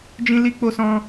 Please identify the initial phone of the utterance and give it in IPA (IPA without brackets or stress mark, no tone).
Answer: d͡ʒ